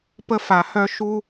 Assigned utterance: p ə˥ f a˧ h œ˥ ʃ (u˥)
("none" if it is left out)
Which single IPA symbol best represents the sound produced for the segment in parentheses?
u˥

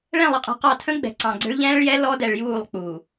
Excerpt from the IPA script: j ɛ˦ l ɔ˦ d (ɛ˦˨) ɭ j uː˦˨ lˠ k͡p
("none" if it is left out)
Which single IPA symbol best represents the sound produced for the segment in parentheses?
ɛ˨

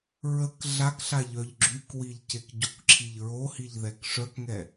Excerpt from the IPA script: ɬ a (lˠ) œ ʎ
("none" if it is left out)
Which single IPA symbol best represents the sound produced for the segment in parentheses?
ʎ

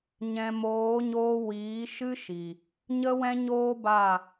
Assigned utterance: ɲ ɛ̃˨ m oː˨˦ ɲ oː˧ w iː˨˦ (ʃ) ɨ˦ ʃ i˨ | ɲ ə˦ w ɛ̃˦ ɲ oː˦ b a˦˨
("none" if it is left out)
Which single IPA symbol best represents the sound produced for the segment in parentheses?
ʃ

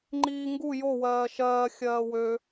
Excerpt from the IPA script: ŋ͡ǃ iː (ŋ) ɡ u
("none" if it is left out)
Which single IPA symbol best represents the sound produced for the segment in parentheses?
ŋ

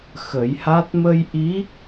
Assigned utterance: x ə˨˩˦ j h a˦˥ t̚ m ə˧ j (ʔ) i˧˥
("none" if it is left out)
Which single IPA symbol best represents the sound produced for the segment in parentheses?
ʔ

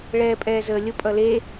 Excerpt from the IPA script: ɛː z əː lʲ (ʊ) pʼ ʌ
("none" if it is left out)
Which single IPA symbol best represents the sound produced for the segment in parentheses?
ʊ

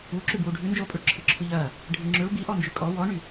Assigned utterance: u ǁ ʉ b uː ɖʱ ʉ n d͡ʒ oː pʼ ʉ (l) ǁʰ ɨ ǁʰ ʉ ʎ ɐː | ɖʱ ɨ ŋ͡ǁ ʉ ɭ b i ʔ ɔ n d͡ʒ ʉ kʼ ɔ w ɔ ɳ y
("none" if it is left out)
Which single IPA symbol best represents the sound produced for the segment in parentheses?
ɭ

